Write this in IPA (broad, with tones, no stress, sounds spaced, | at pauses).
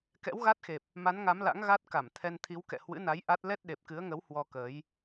k ɛ̰˧˥ w ɣ a˦˥ t̚ x e˨˩ p̚ | m a˨˦ n ŋ a˨˦ m l a̰˧˥ ŋ ɣ a˦˥ t̚ k a˧˩ m t̪ʰ ɛ˧ n t̪ʰ i˨˦ w k ɛ̰˧˨ h w ɨ̰˧˥ n a˨˦ j ʔ a˦˥ t̚ l ɛ˦˥ t̚ ɗ e˨˩ p̚ k ɨ˨˦ ə̯ ŋ ə˨˦ w h w ɔ˧ k əː˨˦ j